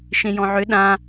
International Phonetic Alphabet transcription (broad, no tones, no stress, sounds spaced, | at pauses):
ʃ ẽ j ɔ̃ ʕ ʏ ɗ ã